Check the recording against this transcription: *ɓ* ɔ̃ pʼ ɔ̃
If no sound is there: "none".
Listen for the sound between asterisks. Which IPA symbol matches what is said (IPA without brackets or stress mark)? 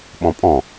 ɓ